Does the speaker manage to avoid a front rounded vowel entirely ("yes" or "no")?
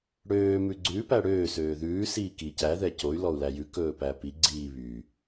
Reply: no